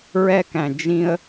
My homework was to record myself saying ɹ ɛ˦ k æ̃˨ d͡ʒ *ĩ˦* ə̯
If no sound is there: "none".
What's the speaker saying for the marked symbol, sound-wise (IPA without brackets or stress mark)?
ĩ˦